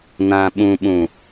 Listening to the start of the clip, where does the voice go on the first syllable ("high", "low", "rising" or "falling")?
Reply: low